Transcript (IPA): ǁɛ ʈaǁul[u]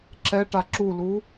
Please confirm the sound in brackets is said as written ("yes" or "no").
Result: yes